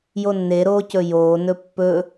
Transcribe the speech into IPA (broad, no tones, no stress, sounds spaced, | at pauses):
j o nː e ɾ oː c ɵ j oː n ɵ pː ɵ